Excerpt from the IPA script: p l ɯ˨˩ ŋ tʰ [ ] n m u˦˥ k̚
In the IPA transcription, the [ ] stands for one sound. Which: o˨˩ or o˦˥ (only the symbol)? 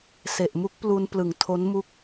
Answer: o˦˥